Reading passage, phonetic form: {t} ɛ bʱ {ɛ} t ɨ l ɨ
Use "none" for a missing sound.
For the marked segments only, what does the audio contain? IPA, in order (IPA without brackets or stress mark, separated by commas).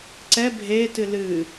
ǀ, e